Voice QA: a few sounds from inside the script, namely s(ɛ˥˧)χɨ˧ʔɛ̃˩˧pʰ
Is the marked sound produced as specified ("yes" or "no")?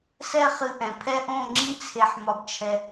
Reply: yes